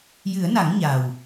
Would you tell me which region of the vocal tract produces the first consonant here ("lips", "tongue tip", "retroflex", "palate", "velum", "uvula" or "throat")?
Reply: palate